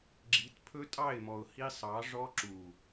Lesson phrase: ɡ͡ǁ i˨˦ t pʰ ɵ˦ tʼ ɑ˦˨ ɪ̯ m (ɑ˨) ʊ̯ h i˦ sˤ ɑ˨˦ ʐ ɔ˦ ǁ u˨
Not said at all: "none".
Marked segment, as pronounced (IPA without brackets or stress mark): ɔ˨